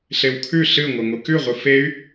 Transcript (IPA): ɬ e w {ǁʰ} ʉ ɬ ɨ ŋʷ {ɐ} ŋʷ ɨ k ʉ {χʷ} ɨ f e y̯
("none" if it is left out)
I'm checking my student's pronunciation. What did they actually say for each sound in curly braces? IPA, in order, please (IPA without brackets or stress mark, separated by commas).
kʰ, ɐ, ʁʷ